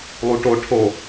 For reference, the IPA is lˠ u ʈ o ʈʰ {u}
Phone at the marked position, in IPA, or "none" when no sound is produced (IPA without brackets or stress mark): o